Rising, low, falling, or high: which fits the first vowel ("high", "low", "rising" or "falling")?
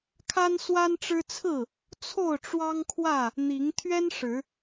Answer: high